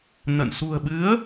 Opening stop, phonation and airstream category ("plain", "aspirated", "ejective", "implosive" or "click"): implosive